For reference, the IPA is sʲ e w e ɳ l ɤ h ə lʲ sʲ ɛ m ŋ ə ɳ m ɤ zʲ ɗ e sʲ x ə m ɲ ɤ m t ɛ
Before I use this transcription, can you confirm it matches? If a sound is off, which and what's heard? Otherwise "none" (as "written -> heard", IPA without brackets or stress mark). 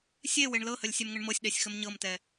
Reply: zʲ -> sʲ